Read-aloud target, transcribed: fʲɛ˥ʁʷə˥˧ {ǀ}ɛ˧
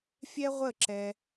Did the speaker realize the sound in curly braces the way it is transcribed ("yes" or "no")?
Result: no